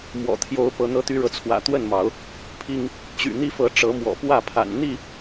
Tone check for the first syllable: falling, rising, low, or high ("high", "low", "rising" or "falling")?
low